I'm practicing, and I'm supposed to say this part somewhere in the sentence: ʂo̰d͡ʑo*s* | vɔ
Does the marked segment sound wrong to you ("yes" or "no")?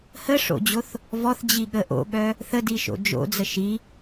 yes